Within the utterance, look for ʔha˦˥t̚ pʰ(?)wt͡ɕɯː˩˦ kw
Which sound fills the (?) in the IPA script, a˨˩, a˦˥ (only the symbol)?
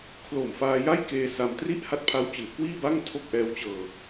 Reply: a˦˥